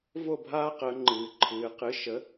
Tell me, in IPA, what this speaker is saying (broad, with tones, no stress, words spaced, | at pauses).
vo˥˩bʱaː˦qəː˩˧ŋ͡ǃɨː˩ ǃʰɨː˩˧qɨ˩˥ʃə˩˥